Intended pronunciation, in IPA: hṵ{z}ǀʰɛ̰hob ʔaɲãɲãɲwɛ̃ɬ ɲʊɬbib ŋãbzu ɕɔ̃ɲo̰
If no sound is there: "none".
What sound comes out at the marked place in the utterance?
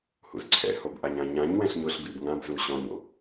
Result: z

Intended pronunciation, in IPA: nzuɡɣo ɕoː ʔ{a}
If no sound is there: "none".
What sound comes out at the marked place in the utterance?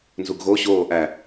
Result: æ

